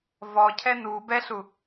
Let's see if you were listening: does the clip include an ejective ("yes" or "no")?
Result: no